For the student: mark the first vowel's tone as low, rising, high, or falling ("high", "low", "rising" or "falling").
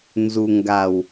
low